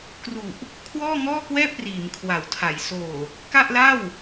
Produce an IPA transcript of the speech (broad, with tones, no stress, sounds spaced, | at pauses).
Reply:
k r u˨˩ ʔ | kʰ w ɔː˥˩ ŋ ɔː˥˩ k w ɛː˥˩ p̚ r iː˩˦ m kʰ w a˩˦ w tʰ a˩˦ j s oː˨˩ | k a˥˩ ʔ l a˥˩ w